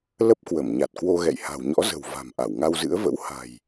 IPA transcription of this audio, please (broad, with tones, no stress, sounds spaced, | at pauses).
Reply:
l ə˦˥ p̚ k w ə˧˩ m ɲ a˨˩ t̚ k w o˧ ɣ ɛ̰˧˨ j h a̤˨˩ w ɲ ɔ̰˧˥ z ə̤˨˩ w v a̤˨˩ m ʔ a˧˩ w ŋ a˧ w z ɨ̰˧˥ ə̯ v ə̰˧˥ w h a̤˨˩ j